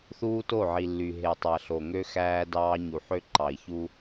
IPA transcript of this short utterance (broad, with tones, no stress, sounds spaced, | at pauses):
θ uː˦ t o˦˨ ʕ i˨ lː y˨ ɦ e˨ tˤ æ˨ ɬ o˨ ŋ ø˦ x æː˦ d ɑː˦ ɲ u˨ ħ ø˦ ǃ ɑ˨ i̯ ç u˦